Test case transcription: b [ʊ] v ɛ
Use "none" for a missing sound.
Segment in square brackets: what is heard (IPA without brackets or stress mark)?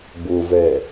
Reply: ʊ